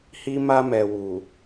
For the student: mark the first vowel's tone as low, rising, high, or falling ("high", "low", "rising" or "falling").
high